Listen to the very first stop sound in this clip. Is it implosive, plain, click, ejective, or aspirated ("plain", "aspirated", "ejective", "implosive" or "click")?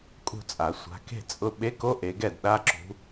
ejective